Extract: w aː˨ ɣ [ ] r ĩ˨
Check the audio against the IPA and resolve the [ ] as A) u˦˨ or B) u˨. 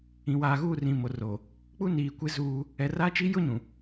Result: A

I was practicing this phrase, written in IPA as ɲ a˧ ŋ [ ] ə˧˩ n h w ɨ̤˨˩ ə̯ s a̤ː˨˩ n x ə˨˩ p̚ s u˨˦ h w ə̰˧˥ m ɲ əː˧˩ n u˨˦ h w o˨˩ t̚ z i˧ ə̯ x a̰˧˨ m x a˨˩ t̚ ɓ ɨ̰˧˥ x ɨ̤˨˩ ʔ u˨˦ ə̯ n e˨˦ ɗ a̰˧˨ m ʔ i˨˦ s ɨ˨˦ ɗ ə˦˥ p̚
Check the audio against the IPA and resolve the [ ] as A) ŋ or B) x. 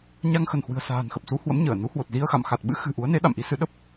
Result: B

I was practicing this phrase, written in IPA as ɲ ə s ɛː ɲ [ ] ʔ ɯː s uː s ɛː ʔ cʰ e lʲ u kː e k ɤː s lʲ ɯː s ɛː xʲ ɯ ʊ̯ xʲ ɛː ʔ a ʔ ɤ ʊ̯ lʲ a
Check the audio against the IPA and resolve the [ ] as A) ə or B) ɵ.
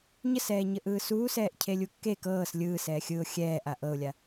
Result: A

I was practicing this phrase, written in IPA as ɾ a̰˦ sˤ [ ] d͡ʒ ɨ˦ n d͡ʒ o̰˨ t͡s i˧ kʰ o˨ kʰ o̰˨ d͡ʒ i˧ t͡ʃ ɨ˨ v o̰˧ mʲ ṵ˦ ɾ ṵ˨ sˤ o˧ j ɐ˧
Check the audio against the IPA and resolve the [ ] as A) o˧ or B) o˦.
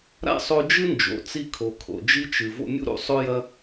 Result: A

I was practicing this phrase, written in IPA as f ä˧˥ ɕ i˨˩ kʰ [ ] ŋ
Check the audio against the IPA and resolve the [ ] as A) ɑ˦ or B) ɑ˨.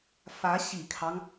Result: A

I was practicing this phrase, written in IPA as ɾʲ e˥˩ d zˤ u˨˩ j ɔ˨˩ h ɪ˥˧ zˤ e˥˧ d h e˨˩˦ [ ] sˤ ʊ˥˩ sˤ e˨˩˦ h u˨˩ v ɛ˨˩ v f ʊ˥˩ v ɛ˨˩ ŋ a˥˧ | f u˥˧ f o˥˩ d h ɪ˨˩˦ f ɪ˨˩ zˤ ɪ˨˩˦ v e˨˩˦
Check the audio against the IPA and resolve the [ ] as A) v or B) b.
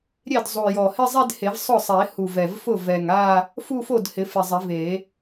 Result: A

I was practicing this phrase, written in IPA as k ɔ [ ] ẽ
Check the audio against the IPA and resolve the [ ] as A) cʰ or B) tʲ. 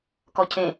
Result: A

